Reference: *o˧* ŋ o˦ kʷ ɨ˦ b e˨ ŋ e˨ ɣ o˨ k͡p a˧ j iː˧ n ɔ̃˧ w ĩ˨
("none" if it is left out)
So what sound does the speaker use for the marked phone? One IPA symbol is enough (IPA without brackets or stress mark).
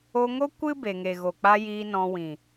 o˧